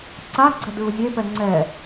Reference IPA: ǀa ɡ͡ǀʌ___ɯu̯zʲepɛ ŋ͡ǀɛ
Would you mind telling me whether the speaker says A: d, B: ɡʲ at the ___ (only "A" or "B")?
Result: A